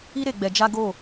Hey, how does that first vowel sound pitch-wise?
high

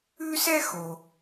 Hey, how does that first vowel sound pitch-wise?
high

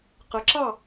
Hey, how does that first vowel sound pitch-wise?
rising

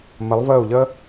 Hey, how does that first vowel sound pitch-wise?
rising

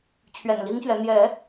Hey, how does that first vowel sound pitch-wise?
low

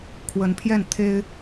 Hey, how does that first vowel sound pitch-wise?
rising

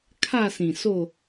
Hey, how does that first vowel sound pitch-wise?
falling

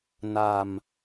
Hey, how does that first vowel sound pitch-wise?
low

